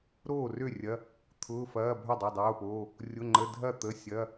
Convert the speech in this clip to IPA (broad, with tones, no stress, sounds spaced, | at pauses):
ɾ oː˥˩ r ø˥˩ rʲ ɐ˩˧˩ | t̪ʰ ʊː˩˧˩ f ɐː˩˧˩ bʱ œ˥˩ dˤ ø˩˧˩ dˤ oː˩˧˩ p oː˩˧˩ | rʲ ʊ˩˧˩ ŋ͡ǃ ə˩˧˩ dʱ ɐ˥˩ t̪ ə˩˧˩ sʲ ɐ˩˧˩